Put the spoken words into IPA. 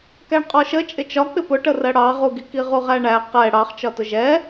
k æ ɳ qʼ ɔ ʃ ə t͡ʃʼ ɪ t͡ʃ ɒ k͡p ɪ p ʊ ʈ ə r ɜ ɽ ɑ ʁ u ɡ i k i ʁ u ʁ æ ɳ æ q ɛ ɽ ɑ χ t͡ʃ ɒ t ʊ ʒ ɛ

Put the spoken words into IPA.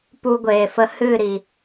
p u˧ ɡʷ eː˨ f ə˧ h ɨ˦˨ ɾ i˨

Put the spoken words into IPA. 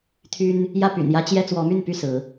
t̪ʰ y˦ n | j ä˥˨ p y̰˨˩ n j ä˦ t͡ɕ j ɛ˦ t͡s w ɔ˨˦ m y˥˨ n p y˥˨ s ɹ̩˨˦

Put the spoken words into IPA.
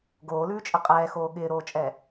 ɡ oː l ʉː t͡ʃʼ ɪ qʼ ɛː x oː ɠ ɪː ɾ oː t͡ʃʼ ɛ

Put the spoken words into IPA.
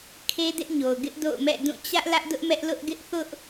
kʰ e˦ d ɪ˦ ʔ ɲ o˨ ʊ̯ ɡ ɪ˦ ʔ d o̰˦˨ ʊ̯ m ɛ̰˦˨ d ũ˦˨ t͡ɕ ä˦ ʔ l ä˦ ʔ d ʊ˦ ʔ m ɛ˦ ʔ l ʊ˦ ʔ ɡ ɪ˦ ʔ θ ʊ˦ ʔ

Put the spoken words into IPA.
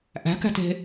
ʔ æ̤ k æ̤ t e̤

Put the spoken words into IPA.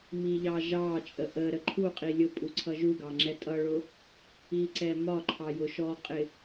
m i ʎ ɑ ʒ ɑ t͡ʃʼ ə ʔ ə ɾ ə ǃʰ u qʼ i lʲ ʊ pʼ u ǀʰ ʌ ʒ u ɡ ɑ ŋ͡ǁ ɛ tʼ ʌ ɭ ʊ | i ǀ ɛ m ɒ ǃʰ ɑ j ʊ ʃ ɔ qʼ ɪ

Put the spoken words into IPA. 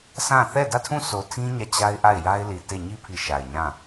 sʰ ã˦˨ θ ɛ˦˨ d ä˦˨ tʰ ũ˦˨ sʰ o˨ tʰ ĩ˦ ɲ ä˦˨ t͡ɕ a˦ ɪ̯ ʔ a˦˨ ɪ̯ j a˦ ɪ̯ l i˨ t e˦˨ ɲ i˦ pʰ i˨ ʃ a˨ ɪ̯ ɲ ã˦˨

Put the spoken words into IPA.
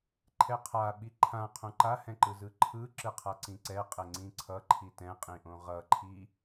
ǃʰ ɛ qʰ a ɓ i ǃʰ ã qʰ õ ǃ a h ɛ̃ ǃ ɯ z ɯ ǃʰ ɯ ǁ ɯ qʰ a ǀ ĩ ǀ ɛ qʼ ɛ ŋ͡ǀ ĩ ǀʰ ʌ ǃʰ i t ɛ̃ qʼ ĩ ʔ õ ʁ ʌ ǃʰ i

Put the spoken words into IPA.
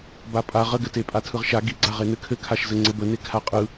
b a pʼ a ʁ ə ɡ ɘ t e pʼ a tʰ ɯ ʁ ʃ a ɡ i ɡ͡ǀ a ʁ e n ɘ kʰ ɘ kʰ a ʃ z ɘ ŋ͡ǀ ɘ b ə n e kʰ a qʼ ɯ

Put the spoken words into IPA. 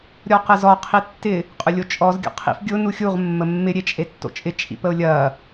ɾʲ ɔ q ə z ɔ qʰ i tː ɪ | qʼ ʊ lʲ o t͡ʃʼ ɔ z ɡʲ ɔ̰ qʰ ḭ f ɡʲ ʊ n u xʲ u ʁ mː ə mː ɪ ɾʲ e t͡ʃʼ e tː o̰ t͡ʃʼ ɪ t͡ʃʼ ḭ p ə o̯ lʲ ɐ

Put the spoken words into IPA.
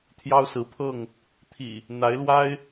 t̪ʰ j ɑ˦ ʊ̯ s ɹ̩˨˦ pʰ ɤ˥˨ ŋ | t̪ʰ ḭ˨˩ | n̪ a˨˦ ɪ̯ l w a˦ ɪ̯

